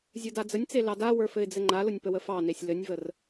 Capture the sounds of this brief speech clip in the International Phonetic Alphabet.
zʲ ə˞ d a d͡z ə nʲ t͡s e l ɑ d a w ə˞ f ɘ ɪ̯ d͡z ɘ ŋ͡ǃ a l ʊ nʲ p ə w ə f ɑ n e sʲ l ɘ nʲ v ə r

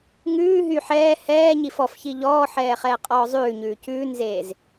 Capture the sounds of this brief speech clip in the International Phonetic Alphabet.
ŋ ʉː ɦ y ħ ɛː h ɛː ɲ i f ɔ f ç i ʎ ɔː ħ ɛː χ ɛː qʼ ɔː zˤ ʉː ɲ ʉː c ʉː n z eː z

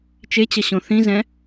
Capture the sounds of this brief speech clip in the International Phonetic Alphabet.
t͡ʃ e t͡ɕ ʌ ɕ õ θ ĩ z ɛ̃

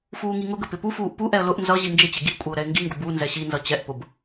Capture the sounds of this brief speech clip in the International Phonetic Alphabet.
f uː ŋ i ŋ ʊ ɡ ə p ɪ p u f uː ʔ p u ʔ ɛ ə̯ l ʊ ʔ n z ʌ ʑ i n d͡ʒ ɪ t͡ɕ ɪ ɡ i kʷʼ ɪ ʊ̯ ɾ ɛ ɪ̯ ŋ ɡ i ŋ ɡ ʊ b u n z ɛ ɕ i n z ʌ t͡ɕ ɛ ʔ p ʊ b

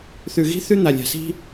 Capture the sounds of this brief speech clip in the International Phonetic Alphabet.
θ ʉ˨ ɣ i̤˦ θ ʉ˦ n̪ a˨ lʲ a̤˨ s i̤˦

